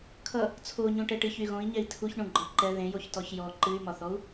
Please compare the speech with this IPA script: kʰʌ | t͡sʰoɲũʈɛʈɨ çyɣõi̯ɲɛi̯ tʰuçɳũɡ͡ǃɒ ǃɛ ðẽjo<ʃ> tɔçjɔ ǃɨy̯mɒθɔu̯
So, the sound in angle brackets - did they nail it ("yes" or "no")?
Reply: no